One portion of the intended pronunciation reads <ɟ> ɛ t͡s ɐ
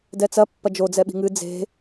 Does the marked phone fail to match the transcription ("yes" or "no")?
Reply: yes